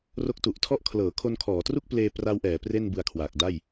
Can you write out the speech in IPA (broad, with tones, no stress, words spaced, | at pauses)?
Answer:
ro˦˥k̚tu˨˩ʔtʰɔ˥˩ʔ kʰlɤː˩˦kʰo˧nkʰɔː˩˦tru˥˩k̚ pleː˧ pra˦˥wʔɛː˩˦ pre˥˩nbɯ˧a̯kʰwaː˨˩k̚da˥˩j